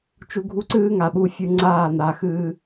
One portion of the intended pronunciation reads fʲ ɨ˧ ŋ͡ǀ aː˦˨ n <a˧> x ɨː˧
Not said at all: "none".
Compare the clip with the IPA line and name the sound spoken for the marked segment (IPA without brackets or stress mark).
a˨